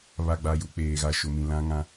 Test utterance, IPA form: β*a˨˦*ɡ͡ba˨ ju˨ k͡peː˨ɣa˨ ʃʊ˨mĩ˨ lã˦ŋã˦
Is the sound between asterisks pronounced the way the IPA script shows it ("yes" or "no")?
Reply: no